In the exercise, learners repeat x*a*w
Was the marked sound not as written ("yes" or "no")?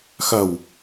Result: yes